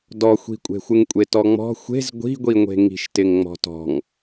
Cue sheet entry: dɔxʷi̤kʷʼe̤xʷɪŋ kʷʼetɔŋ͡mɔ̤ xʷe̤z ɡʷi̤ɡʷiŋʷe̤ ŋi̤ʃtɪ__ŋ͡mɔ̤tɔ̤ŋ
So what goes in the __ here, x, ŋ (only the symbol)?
ŋ